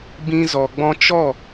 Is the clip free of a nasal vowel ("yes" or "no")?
no